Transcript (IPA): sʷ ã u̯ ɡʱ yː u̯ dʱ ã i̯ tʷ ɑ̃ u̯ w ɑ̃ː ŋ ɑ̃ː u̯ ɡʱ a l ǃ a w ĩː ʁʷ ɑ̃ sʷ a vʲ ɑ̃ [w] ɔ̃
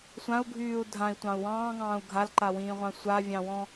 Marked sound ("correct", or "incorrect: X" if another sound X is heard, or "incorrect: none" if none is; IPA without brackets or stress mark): correct